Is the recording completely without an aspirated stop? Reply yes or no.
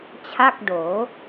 no